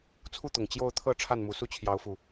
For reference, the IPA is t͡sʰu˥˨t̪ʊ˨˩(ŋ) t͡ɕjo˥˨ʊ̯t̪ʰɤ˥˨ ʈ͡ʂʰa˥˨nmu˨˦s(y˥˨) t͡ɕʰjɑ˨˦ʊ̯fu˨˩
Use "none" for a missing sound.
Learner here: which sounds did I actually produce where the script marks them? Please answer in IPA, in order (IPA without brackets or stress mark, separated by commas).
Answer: ŋ, u˥˨